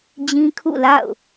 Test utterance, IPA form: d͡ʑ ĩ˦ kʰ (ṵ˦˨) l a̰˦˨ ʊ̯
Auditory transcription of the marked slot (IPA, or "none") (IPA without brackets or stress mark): ṵ˦˨